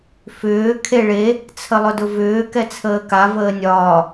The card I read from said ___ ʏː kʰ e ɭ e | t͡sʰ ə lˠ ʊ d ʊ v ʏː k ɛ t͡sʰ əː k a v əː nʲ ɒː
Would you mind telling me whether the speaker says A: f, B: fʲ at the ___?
A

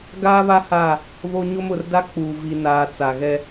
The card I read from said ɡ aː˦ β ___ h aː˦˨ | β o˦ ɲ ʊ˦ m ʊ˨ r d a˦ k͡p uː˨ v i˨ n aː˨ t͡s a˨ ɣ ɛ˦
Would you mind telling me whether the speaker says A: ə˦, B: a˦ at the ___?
B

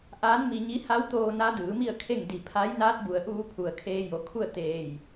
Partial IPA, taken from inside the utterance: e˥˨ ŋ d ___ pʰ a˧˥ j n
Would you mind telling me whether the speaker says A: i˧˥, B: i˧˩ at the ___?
B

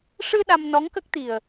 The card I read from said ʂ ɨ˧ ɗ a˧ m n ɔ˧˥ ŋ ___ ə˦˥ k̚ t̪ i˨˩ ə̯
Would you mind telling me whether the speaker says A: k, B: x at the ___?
A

